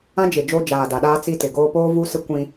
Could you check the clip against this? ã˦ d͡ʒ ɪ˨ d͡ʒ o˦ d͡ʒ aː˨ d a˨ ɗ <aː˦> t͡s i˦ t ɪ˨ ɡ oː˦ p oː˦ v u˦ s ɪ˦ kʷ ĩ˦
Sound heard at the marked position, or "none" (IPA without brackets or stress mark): aː˦